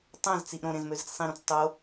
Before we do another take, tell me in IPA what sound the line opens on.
tˤ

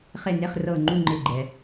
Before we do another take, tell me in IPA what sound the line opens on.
χ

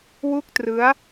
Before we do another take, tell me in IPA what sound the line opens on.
w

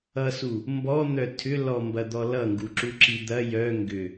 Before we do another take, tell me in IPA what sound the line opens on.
ʌ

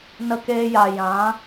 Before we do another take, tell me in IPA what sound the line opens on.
n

